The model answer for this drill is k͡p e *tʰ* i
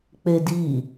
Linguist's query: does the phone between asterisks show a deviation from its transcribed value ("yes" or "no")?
yes